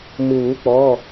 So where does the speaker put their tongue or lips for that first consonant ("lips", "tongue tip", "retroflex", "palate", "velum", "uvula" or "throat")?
lips